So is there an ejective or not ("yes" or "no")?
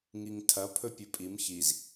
yes